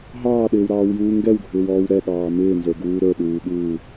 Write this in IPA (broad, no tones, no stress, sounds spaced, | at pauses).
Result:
ɦ ɑː ɗ ɪː w ɾ ɑː w j uː ŋ ɡ ɛ w ɡʱ ɪː w ɔː w ɾ ɛ ɠ ɑː m ɪː n z ə˞ ɡ uː ɾ ə˞ ɗ uː ɠ uː